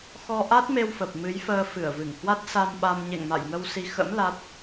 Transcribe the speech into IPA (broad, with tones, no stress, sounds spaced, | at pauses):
x ɔ˧ ʔ a˦˥ t̚ m e˧ w f ə˨˩ p̚ m ɨ˨˦ j f əː˧ f ɨ˧˩ ə̯ v ɨ˧˩ ŋ h w a˦˥ t̚ s a˧ m ɓ a˧ m ɲ ḛ˧˨ ŋ m a̰˧˨ j ŋ ə˧ w s i˧ x ə̰˧˥ m l a˦˥ t̚